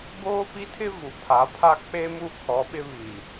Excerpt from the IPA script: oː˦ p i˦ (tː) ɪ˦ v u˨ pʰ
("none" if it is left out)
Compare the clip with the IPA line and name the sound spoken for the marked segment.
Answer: tʰ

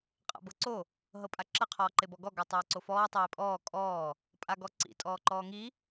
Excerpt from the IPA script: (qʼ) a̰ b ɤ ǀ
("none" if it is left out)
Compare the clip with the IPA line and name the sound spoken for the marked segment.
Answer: qʼ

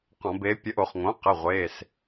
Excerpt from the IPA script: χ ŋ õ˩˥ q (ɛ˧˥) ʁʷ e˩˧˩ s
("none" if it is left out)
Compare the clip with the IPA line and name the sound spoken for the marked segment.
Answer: ɛ˩˧˩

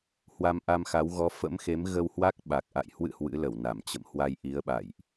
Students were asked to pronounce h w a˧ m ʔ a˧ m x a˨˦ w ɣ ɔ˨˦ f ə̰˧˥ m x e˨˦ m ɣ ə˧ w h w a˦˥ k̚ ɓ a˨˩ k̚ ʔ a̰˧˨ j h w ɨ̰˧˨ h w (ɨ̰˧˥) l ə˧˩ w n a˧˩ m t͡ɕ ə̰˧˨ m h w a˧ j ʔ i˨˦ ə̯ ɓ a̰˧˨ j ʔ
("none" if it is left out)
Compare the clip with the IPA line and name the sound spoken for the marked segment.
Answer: ɨ̰˧˥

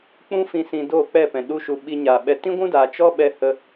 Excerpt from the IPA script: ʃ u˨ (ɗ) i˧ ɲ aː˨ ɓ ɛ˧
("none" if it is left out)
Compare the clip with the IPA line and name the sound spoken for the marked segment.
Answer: ɓ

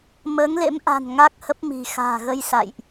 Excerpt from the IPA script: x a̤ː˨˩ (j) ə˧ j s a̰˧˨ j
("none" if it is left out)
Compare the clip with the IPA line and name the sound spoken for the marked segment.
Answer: ɣ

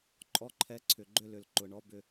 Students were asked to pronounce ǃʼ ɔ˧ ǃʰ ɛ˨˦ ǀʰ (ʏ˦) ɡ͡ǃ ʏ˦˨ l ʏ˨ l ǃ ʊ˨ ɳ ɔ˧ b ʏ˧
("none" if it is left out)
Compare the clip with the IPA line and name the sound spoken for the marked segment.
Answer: ʏ˨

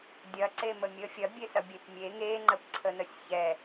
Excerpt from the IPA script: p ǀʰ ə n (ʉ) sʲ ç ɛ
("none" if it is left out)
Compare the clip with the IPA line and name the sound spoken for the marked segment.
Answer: ə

